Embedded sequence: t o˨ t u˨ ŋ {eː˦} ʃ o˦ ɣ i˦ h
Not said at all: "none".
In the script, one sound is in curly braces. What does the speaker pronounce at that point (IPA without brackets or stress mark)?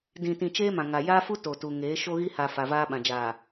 eː˨˦